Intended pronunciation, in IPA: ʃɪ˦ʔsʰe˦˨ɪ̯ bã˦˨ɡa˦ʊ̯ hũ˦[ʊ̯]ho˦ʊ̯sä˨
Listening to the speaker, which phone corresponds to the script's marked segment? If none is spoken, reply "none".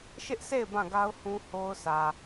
none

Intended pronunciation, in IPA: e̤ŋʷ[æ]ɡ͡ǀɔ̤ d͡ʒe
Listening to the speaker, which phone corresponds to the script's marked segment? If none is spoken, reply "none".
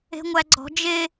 æ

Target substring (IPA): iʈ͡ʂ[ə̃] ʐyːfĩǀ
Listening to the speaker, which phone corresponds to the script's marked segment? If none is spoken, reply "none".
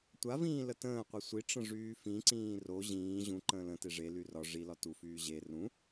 ə̃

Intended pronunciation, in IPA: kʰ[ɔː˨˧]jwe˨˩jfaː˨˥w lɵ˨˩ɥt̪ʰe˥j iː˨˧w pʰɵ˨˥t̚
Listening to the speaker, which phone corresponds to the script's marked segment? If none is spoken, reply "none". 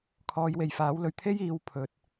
ɔː˨˧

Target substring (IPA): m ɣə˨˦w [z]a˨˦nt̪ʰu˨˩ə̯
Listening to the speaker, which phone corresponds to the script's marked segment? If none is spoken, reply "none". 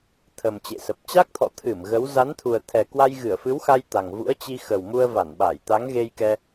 z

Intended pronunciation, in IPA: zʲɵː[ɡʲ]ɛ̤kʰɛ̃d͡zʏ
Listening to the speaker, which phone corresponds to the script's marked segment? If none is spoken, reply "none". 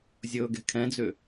ɡ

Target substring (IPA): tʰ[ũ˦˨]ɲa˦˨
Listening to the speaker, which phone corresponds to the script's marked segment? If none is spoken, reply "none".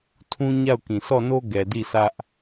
ũ˦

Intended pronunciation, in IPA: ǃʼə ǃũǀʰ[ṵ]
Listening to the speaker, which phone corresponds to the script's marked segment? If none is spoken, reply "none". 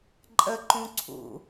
ṵ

